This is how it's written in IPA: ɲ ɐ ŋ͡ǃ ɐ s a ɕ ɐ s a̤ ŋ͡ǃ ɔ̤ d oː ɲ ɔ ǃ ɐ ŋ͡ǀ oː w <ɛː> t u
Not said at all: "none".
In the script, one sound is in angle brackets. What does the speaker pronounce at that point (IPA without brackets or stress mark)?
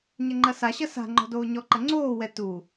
ɛ